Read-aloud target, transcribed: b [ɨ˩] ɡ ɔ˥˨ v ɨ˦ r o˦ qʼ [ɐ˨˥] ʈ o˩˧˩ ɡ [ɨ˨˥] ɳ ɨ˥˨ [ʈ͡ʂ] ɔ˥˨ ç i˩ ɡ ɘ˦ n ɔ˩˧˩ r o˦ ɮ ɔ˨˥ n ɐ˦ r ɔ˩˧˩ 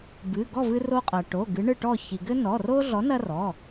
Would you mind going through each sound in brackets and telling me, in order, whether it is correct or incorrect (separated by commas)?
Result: incorrect, incorrect, correct, incorrect